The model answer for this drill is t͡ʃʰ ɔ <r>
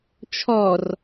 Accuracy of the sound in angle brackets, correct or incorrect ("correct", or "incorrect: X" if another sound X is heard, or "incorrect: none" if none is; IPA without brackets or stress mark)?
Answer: correct